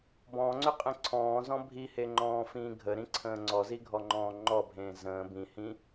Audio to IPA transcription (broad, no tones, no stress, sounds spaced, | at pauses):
b ɔ̃ ŋ͡ǀ ʏ qʼ ẽ ǀʰ ɔ̃ː z ɔ̃ bʱ i h e ŋ͡ǃ ɔ̃ː f ĩː ɡʱ ə ɾ ĩ ǀʰ ə̃ː ŋ͡ǀ ɔ z i ɡʱ ɔ ŋ͡ǃ ɔ̃ː ŋ͡ǃ ɔ bʱ ẽː z ə̃ː b ĩ h ĩ